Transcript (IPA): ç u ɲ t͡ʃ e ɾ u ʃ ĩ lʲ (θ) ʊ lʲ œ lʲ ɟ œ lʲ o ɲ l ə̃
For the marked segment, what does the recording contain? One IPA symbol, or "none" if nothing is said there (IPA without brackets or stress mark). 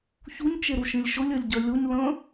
ʃ